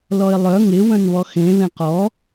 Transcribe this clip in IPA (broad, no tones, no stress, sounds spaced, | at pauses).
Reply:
l ɔ ɪ̯ lˠ œ ŋ ɪ w œ̃ n β ɔ x ẽ β ẽ q ɔ